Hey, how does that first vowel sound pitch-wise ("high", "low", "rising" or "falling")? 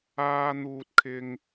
low